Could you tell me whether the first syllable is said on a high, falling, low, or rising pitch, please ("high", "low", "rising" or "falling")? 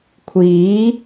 rising